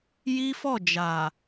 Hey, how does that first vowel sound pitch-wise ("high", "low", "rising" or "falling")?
high